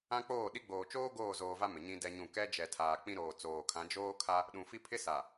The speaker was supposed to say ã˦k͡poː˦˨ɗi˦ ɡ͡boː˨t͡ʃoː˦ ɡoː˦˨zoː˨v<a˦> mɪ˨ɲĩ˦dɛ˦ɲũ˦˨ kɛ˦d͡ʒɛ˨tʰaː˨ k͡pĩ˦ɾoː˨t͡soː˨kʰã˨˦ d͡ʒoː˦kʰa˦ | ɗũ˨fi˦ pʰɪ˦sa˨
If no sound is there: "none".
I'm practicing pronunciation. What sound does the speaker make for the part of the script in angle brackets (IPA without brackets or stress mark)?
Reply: a˦